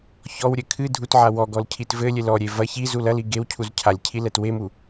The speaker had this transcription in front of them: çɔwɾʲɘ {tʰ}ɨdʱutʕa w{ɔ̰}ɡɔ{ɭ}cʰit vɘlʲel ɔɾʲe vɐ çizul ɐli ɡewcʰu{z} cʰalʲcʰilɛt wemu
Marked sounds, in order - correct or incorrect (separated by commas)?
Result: incorrect, incorrect, incorrect, correct